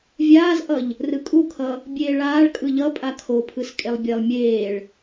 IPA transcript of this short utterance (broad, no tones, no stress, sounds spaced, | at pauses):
vʲ aː z ʔ ʌ ʎ | r ɯ kʼ u kʰ ʌ | bʲ eː ɭ aː ɭ kʼ ɯ ʎ ʌ pʼ a kʰ o pʰ ɯ s kʼ e lˠ bʲ e lˠ mʲ eː ɭ